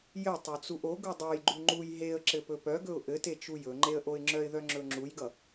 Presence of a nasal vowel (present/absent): absent